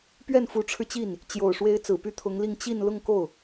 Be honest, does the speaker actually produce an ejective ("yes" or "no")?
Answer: no